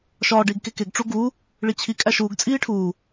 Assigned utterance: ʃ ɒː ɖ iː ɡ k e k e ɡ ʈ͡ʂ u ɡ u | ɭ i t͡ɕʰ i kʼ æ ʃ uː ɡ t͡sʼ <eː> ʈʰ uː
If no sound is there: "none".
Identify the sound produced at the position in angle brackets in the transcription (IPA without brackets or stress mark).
iː